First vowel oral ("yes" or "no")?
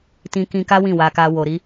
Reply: no